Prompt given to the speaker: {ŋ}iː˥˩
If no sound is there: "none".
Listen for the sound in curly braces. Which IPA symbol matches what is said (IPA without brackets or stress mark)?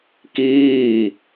k